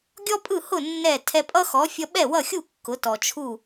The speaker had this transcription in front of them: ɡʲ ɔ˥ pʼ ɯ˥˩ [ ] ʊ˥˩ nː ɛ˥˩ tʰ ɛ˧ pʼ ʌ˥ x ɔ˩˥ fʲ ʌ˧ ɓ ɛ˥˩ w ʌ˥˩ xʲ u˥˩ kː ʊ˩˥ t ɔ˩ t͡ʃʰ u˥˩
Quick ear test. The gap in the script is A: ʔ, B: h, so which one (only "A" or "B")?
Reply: B